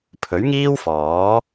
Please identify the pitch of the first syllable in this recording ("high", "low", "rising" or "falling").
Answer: rising